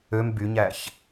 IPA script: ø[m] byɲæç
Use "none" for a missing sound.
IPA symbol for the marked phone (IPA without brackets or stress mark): m